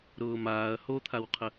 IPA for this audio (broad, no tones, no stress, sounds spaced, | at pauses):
ɾ ʊː m aː ɐ̯ h o t̪ʰ a w qʰ ə